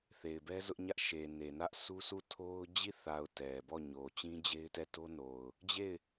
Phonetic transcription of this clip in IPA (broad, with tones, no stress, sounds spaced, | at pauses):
θ e˨ ɪ̯ b ɛ˦ z ʊ˦ ʔ ɲ ä˦ ʔ ʃ e˨ n e˨ n ä˦ ʔ sʰ u˦ s u˦˨ tʰ o˦ ʊ̯ d͡ʑ i˦˨ θ a˨ ʊ̯ t ɛ˨ b ɔ˦˨ ɲ o˨ t͡ɕ ĩ˦ d͡ʑ e˦ ɪ̯ t ɛ˦˨ t o˦ n o˨ ʊ̯ | d͡ʑ e˦˨ ɪ̯